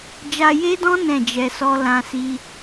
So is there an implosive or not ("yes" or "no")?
no